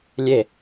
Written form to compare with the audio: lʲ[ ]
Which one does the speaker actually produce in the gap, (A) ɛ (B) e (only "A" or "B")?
B